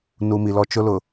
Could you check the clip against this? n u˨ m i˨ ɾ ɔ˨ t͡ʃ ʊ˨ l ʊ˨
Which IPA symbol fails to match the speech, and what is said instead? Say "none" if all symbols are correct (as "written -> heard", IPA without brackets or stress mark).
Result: ɾ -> l